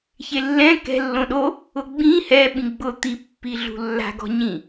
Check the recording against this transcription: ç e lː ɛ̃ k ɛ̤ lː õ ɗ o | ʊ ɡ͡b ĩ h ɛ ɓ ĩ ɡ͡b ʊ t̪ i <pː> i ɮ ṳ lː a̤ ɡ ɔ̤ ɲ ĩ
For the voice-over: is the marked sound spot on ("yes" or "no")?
yes